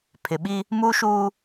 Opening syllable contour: low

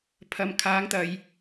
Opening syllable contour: low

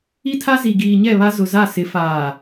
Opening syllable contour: high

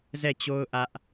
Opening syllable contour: falling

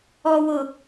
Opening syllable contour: low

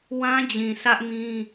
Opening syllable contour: high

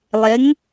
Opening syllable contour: rising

